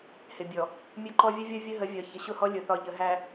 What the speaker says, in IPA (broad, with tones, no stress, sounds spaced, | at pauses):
h ɪ˨ bʲ ɔ˨ | mʲ ʊ˦ ǃ ɔ˦ vʲ ə˦ vʲ ɒ˦ vʲ ə˦ ɦ ə˨˦ vʲ ɒ˨ ç ə˨ ɕ ʊ˦˨ h ɔ˦ lʲ ʊ˨ θ ɒ˨ ʎ ə˨ ɦ æ˨